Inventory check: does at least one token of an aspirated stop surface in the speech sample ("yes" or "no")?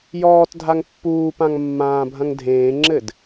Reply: no